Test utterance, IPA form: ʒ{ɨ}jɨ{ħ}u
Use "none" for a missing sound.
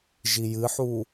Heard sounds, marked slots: i, ħ

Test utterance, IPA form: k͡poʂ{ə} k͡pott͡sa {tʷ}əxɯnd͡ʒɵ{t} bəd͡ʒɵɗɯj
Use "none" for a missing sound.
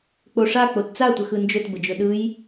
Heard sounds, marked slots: a, tʷ, t

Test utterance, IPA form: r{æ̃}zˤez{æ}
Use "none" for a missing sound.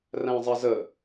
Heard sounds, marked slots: æ̃, ə

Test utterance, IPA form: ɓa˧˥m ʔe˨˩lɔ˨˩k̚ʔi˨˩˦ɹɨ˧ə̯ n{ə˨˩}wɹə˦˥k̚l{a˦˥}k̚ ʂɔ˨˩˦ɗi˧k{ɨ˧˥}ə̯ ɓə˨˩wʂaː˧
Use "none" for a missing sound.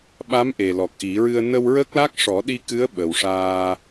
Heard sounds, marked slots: ə˧, a˦˥, ɨ˧˥

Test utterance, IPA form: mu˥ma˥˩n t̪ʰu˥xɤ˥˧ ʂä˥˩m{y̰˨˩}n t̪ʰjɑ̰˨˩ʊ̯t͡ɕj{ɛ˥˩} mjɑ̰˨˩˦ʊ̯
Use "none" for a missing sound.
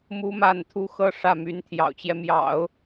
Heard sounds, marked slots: y˧˥, ɛ˦

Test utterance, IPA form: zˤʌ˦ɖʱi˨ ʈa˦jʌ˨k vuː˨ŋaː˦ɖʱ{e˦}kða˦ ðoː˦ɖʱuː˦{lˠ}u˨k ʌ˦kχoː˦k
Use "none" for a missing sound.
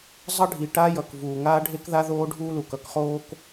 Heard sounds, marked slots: e˦, l

